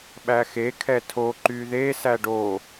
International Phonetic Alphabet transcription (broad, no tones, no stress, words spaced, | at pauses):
ɓæxekʰɛ tʰo ǃyðesæ ɖo